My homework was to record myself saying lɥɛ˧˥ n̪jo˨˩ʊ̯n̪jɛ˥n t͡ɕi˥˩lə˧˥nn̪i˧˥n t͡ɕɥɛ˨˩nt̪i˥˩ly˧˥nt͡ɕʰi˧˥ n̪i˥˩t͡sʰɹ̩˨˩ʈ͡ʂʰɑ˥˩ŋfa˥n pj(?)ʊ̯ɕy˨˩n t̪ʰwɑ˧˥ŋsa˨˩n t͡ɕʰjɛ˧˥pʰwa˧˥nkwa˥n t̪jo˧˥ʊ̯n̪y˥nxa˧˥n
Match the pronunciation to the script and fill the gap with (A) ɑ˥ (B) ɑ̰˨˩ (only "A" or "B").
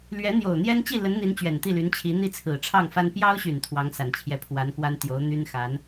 A